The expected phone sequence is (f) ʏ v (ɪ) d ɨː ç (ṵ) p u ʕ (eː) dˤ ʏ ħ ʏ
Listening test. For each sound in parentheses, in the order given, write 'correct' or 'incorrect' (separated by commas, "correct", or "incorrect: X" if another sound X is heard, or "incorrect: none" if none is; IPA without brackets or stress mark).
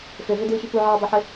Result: correct, incorrect: ʏ, incorrect: u, incorrect: ɨː